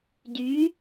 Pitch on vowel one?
rising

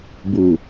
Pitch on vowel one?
low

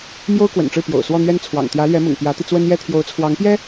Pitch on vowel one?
high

